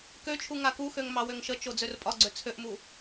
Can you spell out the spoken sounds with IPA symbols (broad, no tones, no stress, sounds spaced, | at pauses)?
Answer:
k ø t͡ʃʰ u ŋ a k u x ø ŋ m ɑ w ø ŋ ʃ ə t͡ʃ o d͡z ø r pʼ ɒ ɡ͡ǀ ø t͡sʰ ø ʔ m u